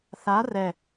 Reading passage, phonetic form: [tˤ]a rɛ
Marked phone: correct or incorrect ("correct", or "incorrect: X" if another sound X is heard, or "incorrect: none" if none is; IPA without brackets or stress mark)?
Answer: incorrect: θ